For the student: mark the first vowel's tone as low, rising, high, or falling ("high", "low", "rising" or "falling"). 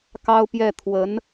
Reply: high